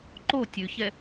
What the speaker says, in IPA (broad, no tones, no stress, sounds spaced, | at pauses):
ǃ o tʲ ʉ ç ɛ